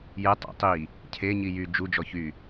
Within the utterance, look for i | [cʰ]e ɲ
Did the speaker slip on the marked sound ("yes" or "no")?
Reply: no